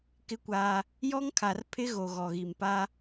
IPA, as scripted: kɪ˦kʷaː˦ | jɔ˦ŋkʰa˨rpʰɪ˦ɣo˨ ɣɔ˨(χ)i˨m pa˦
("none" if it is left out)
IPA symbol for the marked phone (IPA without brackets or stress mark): ɣ